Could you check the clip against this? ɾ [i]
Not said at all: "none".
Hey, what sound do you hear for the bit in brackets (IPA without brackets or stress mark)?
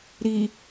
i